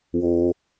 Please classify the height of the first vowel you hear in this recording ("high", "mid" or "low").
mid